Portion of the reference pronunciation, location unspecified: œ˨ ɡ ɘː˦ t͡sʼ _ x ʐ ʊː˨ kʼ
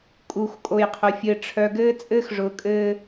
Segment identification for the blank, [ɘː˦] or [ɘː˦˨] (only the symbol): ɘː˦